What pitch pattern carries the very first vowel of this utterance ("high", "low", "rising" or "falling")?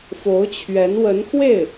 rising